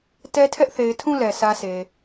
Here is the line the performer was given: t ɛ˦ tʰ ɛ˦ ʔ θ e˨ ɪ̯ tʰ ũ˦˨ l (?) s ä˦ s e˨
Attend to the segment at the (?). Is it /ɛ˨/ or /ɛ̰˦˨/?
ɛ˨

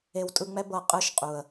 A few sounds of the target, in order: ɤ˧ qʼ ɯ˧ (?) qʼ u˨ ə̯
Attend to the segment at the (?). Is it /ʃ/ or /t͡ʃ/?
ʃ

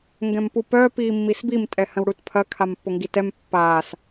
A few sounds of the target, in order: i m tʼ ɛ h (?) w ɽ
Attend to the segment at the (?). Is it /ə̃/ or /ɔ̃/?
ə̃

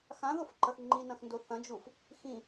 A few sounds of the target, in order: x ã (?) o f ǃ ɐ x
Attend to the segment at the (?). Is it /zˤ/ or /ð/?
ð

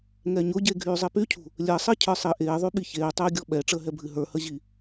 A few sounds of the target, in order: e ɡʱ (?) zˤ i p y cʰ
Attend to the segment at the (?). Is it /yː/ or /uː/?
yː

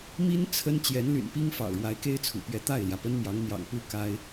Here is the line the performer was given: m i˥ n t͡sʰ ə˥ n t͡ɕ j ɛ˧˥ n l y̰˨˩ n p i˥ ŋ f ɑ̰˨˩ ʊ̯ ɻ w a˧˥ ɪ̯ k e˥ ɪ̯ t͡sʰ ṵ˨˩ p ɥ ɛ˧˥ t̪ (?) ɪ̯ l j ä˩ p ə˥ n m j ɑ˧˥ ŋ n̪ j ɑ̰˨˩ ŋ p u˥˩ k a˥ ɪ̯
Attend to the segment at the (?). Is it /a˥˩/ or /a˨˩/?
a˥˩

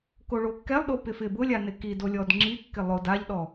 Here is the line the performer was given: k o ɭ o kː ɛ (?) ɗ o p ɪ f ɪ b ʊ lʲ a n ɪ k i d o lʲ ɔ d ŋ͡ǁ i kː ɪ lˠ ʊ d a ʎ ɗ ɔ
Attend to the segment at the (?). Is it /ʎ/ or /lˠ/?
lˠ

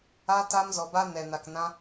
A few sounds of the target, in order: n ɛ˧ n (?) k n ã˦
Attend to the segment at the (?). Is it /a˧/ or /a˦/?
a˧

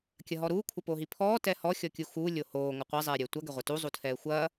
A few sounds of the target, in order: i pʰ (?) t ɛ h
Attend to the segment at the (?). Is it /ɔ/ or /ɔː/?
ɔː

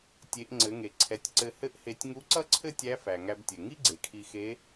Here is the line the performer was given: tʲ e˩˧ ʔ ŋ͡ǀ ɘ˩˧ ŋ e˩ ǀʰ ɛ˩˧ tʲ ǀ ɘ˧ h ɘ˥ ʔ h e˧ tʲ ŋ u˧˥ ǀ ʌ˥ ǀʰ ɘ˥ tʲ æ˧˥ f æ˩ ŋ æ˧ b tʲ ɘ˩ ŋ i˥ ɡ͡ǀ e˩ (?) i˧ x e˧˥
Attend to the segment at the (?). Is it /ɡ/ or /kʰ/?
kʰ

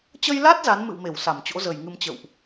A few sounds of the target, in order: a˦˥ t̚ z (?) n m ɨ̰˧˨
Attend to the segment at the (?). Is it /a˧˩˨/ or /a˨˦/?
a˨˦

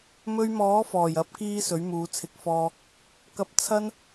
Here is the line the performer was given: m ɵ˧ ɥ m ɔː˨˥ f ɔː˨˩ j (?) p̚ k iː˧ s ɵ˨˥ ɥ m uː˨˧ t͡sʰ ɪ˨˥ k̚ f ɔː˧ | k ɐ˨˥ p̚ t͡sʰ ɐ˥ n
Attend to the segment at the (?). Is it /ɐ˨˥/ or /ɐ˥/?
ɐ˨˥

